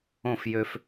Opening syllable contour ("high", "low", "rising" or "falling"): falling